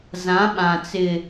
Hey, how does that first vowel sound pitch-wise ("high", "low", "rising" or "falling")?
rising